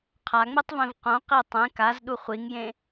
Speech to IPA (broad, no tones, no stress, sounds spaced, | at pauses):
qʰ a ŋ͡m e tˤ v ẽ v q õ q i tˤ ẽ k a z ɗ u χʷ i ŋ j ẽ